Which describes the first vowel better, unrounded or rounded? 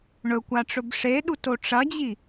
rounded